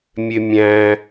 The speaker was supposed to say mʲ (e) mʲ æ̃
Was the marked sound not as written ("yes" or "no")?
no